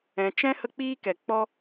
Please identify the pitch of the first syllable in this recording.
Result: low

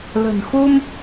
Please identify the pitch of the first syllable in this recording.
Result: low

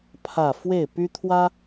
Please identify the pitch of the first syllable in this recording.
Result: falling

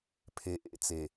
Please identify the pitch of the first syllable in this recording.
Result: low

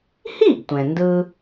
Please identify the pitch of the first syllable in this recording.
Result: falling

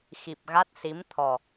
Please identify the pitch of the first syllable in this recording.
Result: low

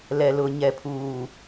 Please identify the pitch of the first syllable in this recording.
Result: low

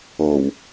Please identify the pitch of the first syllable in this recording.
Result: low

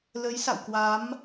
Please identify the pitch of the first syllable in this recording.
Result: rising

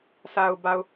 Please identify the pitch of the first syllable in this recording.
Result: low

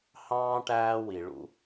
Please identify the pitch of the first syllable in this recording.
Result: high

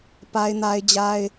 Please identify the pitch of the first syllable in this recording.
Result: high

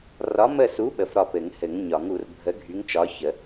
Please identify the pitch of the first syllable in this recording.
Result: rising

